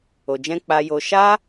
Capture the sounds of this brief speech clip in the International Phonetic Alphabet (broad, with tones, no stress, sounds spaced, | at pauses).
o˨ d͡ʒ ɛ̃˧ k͡p a˧ j o˧ ʃ a˦